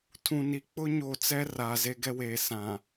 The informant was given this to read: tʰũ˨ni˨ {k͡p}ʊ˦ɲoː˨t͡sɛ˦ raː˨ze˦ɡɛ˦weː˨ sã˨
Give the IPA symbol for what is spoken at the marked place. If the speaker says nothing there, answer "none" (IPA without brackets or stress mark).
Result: k͡p